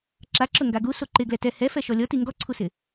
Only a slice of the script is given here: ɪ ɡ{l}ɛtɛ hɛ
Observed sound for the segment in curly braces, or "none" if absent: l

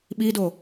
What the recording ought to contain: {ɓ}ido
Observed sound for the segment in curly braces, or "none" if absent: ɓ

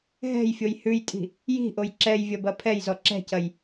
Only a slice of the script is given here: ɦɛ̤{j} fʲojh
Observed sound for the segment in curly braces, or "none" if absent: j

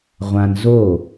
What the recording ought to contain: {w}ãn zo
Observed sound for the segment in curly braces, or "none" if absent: ʁʷ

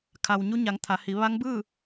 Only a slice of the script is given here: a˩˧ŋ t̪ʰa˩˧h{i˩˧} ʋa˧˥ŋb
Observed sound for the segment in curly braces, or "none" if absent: i˩˧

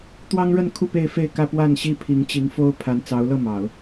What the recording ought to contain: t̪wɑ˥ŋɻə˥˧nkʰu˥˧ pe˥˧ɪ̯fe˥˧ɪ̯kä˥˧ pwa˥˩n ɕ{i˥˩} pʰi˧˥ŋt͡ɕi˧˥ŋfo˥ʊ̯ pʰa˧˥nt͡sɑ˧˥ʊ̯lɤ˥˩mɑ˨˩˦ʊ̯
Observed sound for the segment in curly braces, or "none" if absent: i˥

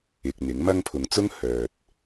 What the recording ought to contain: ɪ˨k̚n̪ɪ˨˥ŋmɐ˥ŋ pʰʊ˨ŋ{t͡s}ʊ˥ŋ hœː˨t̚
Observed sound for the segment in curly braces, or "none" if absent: t͡s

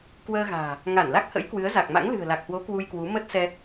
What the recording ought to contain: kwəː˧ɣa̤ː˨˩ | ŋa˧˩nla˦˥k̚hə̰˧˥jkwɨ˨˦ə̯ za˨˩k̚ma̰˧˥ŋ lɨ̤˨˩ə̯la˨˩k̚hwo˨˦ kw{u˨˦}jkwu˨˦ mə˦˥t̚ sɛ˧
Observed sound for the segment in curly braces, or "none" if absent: u˧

